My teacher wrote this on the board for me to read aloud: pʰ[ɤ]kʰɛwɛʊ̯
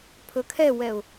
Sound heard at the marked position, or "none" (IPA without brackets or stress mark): ɵ